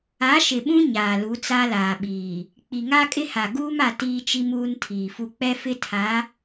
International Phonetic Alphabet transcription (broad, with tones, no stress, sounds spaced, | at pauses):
a˨˦ ʃ ɪ˨ ɓ ũ˦ ɲ aː˨ l u˨˦ t͡s a˦ l aː˨ ɓ iː˨ | k͡p i˨ ŋ a˦ kʼ ɪ˦ h a˨ ɡ uː˦ m a˨ t iː˦ t͡ʃ i˦ m uː˦ n tʰ iː˨ f u˦ k͡p ɛ˦ f ɪ˦ tʰ a˨˦